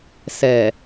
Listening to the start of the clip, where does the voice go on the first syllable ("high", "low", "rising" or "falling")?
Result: low